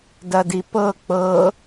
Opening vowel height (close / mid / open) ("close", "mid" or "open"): open